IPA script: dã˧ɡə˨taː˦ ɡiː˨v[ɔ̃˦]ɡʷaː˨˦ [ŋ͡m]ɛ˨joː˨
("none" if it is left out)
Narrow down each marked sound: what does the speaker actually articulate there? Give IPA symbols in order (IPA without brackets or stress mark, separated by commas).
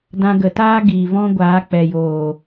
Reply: ɔ̃˦, k͡p